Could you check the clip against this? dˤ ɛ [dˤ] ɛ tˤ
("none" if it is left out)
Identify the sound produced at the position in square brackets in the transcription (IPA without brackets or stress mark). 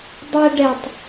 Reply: ɖ